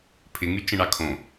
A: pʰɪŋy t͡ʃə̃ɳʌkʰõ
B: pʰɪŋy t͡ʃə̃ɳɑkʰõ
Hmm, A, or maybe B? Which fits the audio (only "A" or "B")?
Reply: B